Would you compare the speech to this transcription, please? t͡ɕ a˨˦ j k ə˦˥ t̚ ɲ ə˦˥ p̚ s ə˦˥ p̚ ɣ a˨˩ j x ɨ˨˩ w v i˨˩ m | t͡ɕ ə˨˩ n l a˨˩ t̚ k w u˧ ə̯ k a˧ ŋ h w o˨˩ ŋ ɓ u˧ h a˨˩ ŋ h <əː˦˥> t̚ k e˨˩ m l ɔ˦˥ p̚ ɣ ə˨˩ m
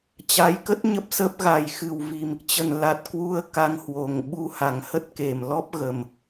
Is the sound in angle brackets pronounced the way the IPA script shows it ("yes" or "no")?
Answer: no